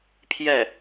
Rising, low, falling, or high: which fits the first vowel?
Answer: falling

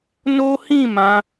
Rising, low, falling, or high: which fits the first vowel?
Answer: high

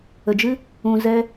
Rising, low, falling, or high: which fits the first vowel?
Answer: low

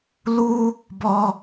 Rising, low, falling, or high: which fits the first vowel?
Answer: high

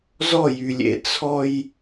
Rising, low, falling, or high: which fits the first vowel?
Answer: falling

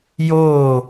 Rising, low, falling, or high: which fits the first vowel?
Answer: falling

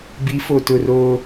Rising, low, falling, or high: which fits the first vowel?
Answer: rising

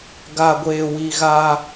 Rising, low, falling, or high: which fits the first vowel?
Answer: low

